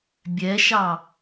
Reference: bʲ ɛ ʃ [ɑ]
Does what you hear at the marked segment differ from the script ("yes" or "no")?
no